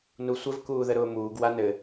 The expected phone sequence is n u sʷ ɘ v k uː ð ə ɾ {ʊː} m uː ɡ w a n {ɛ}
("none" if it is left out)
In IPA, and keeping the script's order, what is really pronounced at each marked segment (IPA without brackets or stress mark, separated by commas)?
ʊː, ɘ